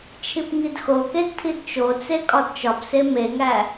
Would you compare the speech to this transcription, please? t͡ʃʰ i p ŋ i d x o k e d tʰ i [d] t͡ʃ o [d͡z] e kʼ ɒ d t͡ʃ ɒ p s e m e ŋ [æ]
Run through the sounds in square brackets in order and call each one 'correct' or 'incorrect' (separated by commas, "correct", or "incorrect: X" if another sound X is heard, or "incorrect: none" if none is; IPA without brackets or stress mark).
correct, incorrect: t͡s, correct